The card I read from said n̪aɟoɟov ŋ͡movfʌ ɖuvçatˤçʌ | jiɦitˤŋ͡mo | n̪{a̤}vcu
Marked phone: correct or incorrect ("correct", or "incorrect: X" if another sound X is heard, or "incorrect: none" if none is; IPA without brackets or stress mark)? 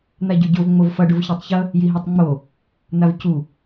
incorrect: a